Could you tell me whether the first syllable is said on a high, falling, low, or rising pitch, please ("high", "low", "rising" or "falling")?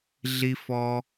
high